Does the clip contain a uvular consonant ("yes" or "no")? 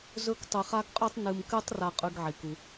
yes